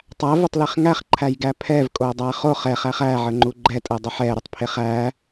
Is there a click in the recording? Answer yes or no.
yes